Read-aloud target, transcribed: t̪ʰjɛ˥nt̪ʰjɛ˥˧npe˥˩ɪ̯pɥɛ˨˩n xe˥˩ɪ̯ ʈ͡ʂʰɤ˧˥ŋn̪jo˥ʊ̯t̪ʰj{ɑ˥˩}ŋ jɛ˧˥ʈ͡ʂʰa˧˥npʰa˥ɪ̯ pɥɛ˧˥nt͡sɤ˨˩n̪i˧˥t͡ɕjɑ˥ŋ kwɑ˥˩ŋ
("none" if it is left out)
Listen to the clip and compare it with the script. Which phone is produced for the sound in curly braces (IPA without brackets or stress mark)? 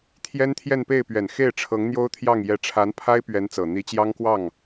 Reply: ɑ˥˩